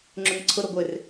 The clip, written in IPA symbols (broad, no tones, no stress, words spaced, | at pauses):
ŋ͡ǁʊnɐǀʰʊɾo ɡʷɪr